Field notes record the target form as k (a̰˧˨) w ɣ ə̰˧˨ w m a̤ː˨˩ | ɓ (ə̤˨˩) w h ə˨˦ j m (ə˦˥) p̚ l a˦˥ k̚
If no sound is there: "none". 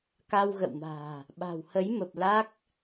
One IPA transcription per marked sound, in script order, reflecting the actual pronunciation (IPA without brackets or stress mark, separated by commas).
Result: a˧, a̤˨˩, ə˨˩